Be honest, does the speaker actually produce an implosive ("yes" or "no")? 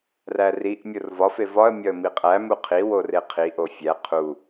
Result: no